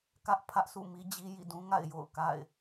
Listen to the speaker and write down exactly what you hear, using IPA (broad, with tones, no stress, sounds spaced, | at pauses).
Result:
k ä˦ ʔ pʰ ä˦ ʔ sʰ ṵ˦˨ m i˦ d͡ʑ i˦ j ḭ˦˨ d ũ˦ ŋ a̰˦˨ ɪ̯ j o̰˦˨ ʊ̯ k a̰˦˨ ɪ̯